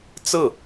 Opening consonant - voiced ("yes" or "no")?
no